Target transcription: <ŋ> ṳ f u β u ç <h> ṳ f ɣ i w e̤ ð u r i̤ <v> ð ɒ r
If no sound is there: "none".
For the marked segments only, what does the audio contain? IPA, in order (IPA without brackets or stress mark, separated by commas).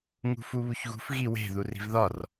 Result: ŋ, ɣ, v